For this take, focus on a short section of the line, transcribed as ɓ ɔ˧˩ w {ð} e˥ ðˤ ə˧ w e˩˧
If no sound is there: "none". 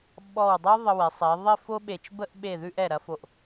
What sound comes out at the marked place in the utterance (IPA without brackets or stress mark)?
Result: dˤ